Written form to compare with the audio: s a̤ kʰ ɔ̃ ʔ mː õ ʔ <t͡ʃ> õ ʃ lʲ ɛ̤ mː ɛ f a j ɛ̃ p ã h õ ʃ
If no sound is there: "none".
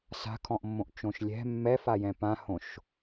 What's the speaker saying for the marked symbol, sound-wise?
t͡ʃ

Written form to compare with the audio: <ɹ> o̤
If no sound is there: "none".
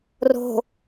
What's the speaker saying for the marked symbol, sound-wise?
r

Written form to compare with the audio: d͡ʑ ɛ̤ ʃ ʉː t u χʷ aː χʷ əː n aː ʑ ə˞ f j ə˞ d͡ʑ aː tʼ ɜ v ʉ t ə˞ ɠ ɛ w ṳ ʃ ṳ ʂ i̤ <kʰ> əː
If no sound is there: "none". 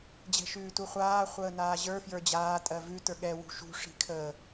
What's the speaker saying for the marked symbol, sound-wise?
kʰ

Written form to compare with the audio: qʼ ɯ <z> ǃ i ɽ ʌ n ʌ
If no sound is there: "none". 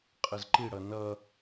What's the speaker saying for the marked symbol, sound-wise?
z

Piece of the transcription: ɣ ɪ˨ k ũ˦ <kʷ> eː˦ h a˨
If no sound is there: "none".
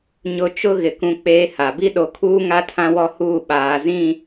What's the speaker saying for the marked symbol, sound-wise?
k͡p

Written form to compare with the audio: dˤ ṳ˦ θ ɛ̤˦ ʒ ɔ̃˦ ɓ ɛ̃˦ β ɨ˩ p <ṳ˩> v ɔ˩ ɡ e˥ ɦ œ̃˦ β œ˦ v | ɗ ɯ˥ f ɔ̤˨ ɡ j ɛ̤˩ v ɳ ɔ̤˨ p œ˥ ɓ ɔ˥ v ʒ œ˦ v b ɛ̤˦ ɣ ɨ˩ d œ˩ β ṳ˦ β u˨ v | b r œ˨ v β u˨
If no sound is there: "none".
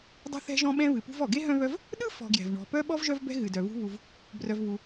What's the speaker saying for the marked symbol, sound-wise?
ṳ˦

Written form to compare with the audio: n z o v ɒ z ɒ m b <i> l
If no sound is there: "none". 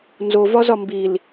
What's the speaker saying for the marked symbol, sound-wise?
i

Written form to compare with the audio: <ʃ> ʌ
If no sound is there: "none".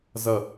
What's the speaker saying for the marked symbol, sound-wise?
z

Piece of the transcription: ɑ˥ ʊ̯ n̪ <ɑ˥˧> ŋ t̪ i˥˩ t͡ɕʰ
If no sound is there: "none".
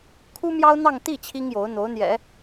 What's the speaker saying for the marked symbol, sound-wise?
ɑ˥˧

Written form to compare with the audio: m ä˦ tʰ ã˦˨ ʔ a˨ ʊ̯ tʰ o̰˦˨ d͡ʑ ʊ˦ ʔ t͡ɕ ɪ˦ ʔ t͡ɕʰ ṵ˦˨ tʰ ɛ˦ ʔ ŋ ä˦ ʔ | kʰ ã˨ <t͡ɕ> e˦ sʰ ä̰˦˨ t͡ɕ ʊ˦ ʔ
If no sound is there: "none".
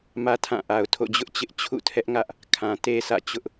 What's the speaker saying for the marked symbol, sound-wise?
t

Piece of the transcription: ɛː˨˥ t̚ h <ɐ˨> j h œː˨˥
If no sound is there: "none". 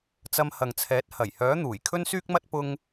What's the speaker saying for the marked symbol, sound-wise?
ɐ˨˩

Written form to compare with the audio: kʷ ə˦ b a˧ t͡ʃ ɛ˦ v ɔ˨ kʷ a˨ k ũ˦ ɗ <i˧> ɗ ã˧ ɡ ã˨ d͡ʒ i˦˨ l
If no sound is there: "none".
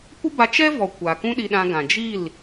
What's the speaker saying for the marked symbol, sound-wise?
i˧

